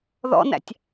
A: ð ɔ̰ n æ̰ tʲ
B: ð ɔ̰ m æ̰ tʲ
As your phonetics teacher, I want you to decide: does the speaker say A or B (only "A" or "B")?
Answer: A